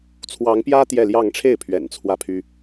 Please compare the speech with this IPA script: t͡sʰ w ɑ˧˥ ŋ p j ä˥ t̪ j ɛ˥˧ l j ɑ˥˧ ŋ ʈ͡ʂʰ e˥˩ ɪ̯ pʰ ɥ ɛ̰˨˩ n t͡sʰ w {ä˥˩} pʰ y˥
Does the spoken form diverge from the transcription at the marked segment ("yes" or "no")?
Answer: no